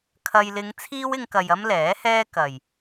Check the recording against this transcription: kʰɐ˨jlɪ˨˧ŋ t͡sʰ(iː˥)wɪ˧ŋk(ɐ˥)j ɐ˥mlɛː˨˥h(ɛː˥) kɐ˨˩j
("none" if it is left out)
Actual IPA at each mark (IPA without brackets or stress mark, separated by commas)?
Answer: iː˥, ɐ˨, ɛː˥